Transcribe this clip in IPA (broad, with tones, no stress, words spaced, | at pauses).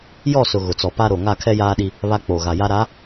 jɔ˦˨sʊ˨ ɣʊ˨t͡sɔ˨pa˦ɾo˨ ŋa˦˨kʰɛ˦jaː˦ɗi˦ | βa˦k͡po˨ɣa˨ ja˦ɾa˨˦